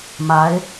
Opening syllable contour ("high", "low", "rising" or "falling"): rising